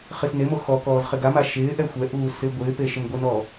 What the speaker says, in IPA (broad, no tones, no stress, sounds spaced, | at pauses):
χ i s n e m o x ɔ k ɔː z χ ɪ ɡ a m a ʃ ɪː ʔ ɛ xʷ ɛ ʔ uː s ɪ ɡʷ ɪː p e ʃ ɪ m ɡʷ ɪ n ɔː